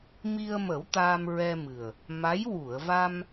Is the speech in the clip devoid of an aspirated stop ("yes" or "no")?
yes